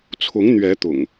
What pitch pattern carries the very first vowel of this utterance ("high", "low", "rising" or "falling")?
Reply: rising